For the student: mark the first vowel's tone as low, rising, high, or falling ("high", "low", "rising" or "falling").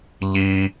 high